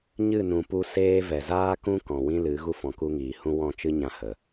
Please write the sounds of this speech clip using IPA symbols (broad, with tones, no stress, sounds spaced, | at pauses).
ɲ ɨ˦˨ n ũ˨ p u˧ s eː˦ v ɛ˨ z aː˦ k ũ˦ k ɔ̃˨ w ĩ˦ l ɨ˨˦ ɣ u˦ f ɔ̃˨ k u˦ ŋ iː˨ h ũ˦ w ɔ̃˦˨ t͡ʃ ɨ˦ ɲ ã˦ h ə˨